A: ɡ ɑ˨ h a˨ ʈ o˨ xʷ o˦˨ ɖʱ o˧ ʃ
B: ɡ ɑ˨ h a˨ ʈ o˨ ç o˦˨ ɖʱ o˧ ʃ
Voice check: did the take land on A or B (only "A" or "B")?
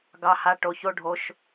B